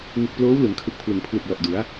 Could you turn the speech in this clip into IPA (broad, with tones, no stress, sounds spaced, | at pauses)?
ŋ ɯ˨˩ k̚ p l oː˦˥ w l ɯ˩˦ ŋ kʰ ɯ˨˩ k̚ pʰ l ɯ˩˦ ŋ pʰ l u˨˩ k̚ l ɔ˨˩ ʔ d u˩˦ a̯